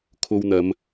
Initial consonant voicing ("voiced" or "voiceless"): voiceless